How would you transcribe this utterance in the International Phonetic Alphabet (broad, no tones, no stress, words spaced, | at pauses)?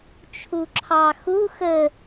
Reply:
t͡ʃʰuǁʰɑxu xə